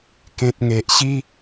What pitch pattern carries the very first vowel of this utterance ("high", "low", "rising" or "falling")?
low